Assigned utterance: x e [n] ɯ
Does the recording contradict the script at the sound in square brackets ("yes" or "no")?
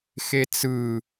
yes